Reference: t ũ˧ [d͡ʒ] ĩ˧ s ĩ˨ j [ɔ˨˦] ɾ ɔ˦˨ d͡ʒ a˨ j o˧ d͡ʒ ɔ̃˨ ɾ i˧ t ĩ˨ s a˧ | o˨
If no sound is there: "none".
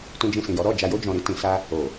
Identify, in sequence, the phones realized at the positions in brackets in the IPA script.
d͡ʒ, ɔ˨˦

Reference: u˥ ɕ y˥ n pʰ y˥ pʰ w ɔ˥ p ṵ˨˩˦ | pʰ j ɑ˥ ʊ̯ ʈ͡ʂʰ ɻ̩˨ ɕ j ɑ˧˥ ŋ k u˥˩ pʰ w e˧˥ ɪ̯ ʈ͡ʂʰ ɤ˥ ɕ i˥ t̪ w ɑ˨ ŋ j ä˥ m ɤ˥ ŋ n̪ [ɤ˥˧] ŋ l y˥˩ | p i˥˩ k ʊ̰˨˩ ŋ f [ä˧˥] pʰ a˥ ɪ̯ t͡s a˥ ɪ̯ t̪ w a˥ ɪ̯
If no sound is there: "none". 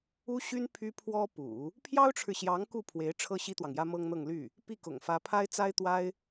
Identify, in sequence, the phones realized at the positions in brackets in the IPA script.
ɤ˥˧, ä˧˥

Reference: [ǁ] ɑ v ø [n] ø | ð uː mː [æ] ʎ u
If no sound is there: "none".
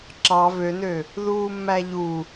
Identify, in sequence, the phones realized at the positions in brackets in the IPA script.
ǁ, n, æ

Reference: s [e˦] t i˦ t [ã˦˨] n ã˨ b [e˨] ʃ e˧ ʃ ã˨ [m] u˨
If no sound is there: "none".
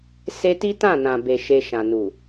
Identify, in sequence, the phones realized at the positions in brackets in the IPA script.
e˦, ã˦˨, e˨, n

